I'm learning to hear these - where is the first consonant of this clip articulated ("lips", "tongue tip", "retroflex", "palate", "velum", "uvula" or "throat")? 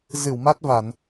tongue tip